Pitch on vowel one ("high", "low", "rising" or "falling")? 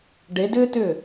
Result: rising